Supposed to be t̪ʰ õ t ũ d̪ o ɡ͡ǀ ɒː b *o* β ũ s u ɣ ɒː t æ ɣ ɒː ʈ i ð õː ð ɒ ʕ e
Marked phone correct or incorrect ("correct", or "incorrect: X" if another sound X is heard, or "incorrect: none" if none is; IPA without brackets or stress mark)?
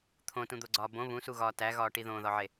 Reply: incorrect: õ